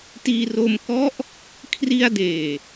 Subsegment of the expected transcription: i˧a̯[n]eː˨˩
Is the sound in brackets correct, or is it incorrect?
incorrect